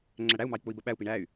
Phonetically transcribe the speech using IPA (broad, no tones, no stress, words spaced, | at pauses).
ŋ͡ǁæɽæu̯mɑi̯ k͡pʊi̯bəɓæu̯pi ɳæy̯